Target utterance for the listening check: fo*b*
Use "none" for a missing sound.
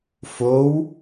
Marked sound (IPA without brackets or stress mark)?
w